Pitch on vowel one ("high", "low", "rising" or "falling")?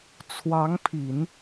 rising